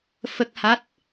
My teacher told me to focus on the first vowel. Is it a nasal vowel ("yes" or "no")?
no